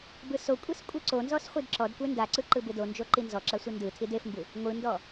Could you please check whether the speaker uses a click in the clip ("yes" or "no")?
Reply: yes